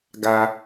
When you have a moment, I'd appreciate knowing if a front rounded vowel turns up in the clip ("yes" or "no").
no